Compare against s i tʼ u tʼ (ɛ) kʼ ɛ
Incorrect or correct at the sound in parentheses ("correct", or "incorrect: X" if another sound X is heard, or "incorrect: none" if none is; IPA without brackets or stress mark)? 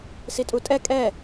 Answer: correct